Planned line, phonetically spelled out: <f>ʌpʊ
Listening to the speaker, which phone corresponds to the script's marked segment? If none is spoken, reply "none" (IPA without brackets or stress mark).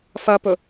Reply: f